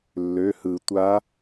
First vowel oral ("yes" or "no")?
yes